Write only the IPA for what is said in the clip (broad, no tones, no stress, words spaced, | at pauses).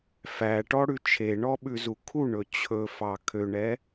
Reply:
fæʈɔɽʉ t͡ʃʰeɳɔɓʉzu kʰuɳɵ t͡ɕʰɵfɑ kʰøɳɛ